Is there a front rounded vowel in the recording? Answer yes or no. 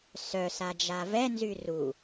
yes